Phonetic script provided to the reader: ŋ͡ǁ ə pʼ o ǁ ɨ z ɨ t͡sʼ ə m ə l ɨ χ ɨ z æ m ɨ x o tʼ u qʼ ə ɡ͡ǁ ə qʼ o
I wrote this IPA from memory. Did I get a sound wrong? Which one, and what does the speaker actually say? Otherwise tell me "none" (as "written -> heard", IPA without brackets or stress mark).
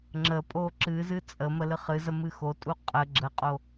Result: æ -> ə